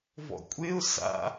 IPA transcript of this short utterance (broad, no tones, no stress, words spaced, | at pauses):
vɔ̰kʷʼeʊ̯ sa̰